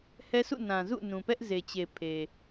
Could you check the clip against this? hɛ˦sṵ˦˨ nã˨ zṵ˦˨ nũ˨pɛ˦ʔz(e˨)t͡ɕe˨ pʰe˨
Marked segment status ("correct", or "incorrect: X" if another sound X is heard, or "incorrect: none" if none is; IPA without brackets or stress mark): correct